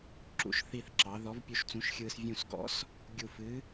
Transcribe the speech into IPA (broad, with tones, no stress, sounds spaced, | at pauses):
ǁ ṵ˧˩ ʃ θ i˧˩ θ ǁ ɑ˩˧ ð ɔ˨˥ v pʲ u˧ ʃ t͡s ũ˨˥ ʃ xʲ ɯː˧ s vʲ ũ˧˩ s ɡ ɔ̰˨˥ s | ɡʲ u˧˩ f ɨ˨˥